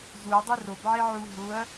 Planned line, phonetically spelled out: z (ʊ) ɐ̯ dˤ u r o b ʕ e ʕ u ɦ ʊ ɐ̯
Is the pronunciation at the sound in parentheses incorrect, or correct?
incorrect